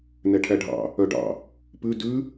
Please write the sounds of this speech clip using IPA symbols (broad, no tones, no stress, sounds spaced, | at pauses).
n ɛ ʈʰ æ ɖʱ ɑ̰ | œ ɖ ɑ̰ | p ʉ d ʉ